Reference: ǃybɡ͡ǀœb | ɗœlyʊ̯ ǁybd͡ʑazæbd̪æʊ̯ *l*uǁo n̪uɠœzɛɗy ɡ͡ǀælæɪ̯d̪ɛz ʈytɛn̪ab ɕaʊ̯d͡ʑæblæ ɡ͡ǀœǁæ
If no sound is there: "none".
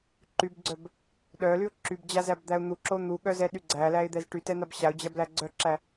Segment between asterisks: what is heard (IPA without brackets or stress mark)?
n̪